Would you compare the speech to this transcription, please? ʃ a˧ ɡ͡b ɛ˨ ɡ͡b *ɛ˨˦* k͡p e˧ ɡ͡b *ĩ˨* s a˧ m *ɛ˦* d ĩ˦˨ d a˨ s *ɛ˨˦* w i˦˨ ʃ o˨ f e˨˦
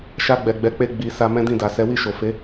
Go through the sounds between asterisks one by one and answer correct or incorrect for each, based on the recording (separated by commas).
correct, incorrect, incorrect, correct